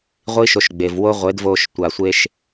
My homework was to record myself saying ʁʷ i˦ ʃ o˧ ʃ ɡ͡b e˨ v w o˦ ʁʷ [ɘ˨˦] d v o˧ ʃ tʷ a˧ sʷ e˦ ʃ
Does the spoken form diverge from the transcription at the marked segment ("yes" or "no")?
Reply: yes